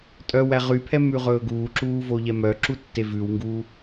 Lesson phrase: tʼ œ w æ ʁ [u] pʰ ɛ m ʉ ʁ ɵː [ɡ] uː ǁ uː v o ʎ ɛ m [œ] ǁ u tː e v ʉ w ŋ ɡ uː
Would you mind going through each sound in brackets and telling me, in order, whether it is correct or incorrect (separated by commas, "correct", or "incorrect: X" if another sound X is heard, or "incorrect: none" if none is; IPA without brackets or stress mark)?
incorrect: y, correct, correct